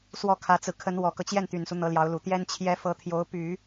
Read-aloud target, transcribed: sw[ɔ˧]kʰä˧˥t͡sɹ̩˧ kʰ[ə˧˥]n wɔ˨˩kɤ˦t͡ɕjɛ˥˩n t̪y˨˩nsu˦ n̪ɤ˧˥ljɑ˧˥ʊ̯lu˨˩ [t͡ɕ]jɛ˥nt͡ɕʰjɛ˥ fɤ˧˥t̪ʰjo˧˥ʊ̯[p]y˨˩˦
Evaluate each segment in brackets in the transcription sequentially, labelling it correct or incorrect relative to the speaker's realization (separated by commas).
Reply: incorrect, correct, incorrect, correct